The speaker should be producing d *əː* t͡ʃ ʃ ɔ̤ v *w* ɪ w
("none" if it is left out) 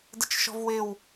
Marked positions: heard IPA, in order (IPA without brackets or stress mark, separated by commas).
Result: ə, w